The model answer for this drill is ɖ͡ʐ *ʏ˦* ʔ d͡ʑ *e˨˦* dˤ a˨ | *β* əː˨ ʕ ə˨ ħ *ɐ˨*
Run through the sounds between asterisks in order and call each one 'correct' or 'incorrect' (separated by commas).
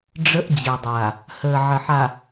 incorrect, incorrect, incorrect, incorrect